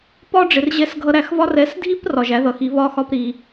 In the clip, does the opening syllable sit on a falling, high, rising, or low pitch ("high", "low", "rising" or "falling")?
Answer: high